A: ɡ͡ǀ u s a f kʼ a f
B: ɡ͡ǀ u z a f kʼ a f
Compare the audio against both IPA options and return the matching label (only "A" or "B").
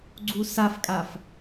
A